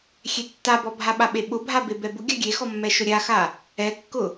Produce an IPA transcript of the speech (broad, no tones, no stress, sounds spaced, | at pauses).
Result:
xʲ e tː a b ɔ bʱ a ɓ a ɓ e ɓ ʊ bʱ a b e b ɛ b ʊ ɡʲ a ɡʲ e x ɔ mː ɛ ʃ ʊ ɾʲ a x a | ɛ kː ʊ